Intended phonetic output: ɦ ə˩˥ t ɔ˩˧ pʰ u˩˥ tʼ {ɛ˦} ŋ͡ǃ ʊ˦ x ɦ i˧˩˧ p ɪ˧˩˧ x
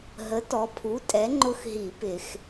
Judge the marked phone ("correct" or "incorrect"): incorrect